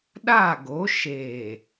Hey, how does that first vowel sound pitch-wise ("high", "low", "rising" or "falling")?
falling